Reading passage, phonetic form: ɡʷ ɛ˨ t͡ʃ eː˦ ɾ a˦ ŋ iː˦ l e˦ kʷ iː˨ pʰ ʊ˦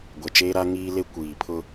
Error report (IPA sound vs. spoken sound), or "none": none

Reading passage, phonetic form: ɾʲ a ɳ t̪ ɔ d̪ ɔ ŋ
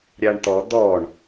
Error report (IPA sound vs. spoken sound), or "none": ŋ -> ɳ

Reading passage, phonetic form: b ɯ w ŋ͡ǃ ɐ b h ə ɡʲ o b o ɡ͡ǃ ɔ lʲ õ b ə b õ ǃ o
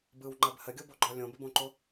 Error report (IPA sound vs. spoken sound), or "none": none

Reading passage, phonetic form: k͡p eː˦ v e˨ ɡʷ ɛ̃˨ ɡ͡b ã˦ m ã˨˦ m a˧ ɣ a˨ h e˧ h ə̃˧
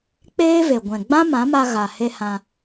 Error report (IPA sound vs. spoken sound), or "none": ə̃˧ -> ã˧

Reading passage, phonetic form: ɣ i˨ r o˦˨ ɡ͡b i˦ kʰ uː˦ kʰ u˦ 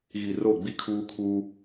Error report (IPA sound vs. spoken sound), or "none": none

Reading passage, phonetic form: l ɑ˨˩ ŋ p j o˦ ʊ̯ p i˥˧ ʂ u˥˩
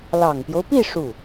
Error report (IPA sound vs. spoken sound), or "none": none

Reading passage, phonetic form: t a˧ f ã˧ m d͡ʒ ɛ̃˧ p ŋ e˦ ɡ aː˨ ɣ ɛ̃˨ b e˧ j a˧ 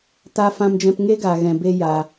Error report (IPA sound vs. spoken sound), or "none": none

